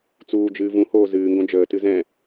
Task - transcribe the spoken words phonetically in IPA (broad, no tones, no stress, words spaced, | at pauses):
t͡suːd͡ʒɨː vũhoː zɨːŋɡõ d͡ʒəːtɨ zɛ̃